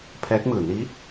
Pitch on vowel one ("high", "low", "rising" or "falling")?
rising